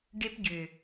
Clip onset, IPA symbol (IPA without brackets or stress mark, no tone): ɖ